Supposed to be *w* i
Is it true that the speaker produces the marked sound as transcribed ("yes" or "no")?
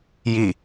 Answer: no